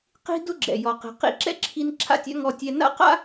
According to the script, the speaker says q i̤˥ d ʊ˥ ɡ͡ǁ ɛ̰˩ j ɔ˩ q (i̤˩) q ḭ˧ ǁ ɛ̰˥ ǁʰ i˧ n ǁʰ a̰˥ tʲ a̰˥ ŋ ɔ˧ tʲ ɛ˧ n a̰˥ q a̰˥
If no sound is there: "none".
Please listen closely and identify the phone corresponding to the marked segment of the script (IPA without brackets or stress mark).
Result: i̤˩